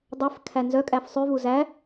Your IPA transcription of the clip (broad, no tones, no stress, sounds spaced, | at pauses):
dˤ ɛ f kʰ æ n z œ kʼ æ f sˤ ʉ v u z æ